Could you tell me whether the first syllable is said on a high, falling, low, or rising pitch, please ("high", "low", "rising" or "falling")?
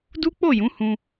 high